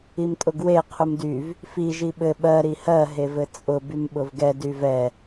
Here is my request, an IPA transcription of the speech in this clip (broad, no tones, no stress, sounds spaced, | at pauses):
i m tʼ ʊ ɡ w e qʰ u m d y v | f i ʒ i ɓ ɘ ɓ ɜ ɾ i h ɜ ɦ e v ɘ t͡sʼ ʊ b y m ɓ ʊ v ɡ ɛ d y v ɛ